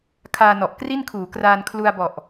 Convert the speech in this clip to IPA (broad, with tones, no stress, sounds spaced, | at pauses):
kʰ aː˧ n ɔ˨˩ ʔ k r i˥˩ n kʰ uː˩˦ k r aː˧ n kʰ l u˧ a̯ b ɔ˨˩ ʔ